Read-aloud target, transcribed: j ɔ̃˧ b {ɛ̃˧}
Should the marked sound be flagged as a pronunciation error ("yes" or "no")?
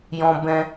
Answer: no